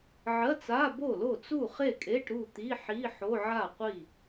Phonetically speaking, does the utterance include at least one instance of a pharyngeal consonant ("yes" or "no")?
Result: yes